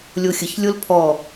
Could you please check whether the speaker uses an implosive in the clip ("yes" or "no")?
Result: no